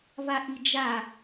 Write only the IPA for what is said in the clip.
vaʔid͡ʒa

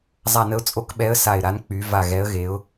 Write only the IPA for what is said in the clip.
zˤa˧˩nə˨˦ʊ̯t͡sʼo˨˦kɓɛ˨˦ə̯ sa˧˩ɪ̯ɾa˨˦n k͡py˨˦ va˧˩ɣɛ˨˦ə̯ɣe˨˦ʊ̯

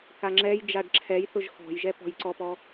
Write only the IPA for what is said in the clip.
kaŋ͡ǁɛjd͡ʒaɖ ǁʰɛjθʊʒ xɔ̤jʒɛ pɔ̤jǀɔpɔ

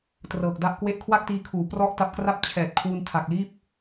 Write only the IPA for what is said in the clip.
trɤː˨˩k̚da˥˩ʔkwe˥˩ʔ kʰwa˥˩k̚tiː˧kʰuː˩˦ prɔ˥˩ʔta˦˥p̚kra˥˩p̚ t͡ɕʰɛː˨˩t̚ kʰwu˧ntʰa˨˩k̚liː˥˩p̚

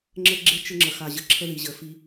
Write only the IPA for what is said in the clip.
ŋ͡ǁə˦ɡ͡ǁe˦ t͡ʃə˦ŋ͡ǁə˨xa˨ ʑə˨ǁʰə˦ði˨ʑə˨ fi˦

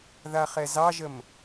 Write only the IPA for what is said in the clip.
ðaχɛzɑʒəm

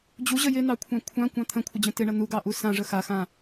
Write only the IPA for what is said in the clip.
d͡ʑuʑə jɪnɑkʷʰã kʷʰãkʷɑ̃ t̪ʰə̃kʷʰɪd͡ʑə̃ tɪɳɐ nuɡɑʔu sãʐə xaxã

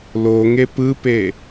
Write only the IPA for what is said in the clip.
lo ŋepɯpe

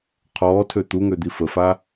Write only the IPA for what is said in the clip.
qʰɔːtʰø t̪uŋød̪i fəfa

